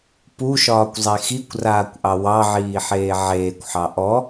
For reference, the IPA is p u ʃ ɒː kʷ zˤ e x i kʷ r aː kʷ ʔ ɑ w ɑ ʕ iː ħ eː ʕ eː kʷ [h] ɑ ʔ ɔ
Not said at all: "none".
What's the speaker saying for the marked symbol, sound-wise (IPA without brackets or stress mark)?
ħ